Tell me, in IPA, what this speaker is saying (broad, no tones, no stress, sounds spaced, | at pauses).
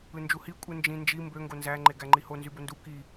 ɯ n d͡ʒ u h i kʷʼ ɯ n d͡ʒ ĩ n d͡ʒ i m b ø ŋ ɡ o n z æ ŋ͡ǃ e ɡ æ ŋ͡ǃ i h o n z y b o n d u k i